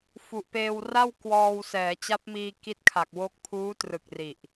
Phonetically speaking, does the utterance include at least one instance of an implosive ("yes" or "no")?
no